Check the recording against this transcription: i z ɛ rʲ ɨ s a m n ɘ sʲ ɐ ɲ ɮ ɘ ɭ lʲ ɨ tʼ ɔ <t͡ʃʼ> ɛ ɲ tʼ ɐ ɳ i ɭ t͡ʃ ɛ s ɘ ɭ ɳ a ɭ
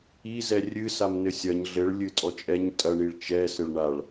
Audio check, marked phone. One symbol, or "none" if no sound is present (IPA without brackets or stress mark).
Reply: t͡ʃʼ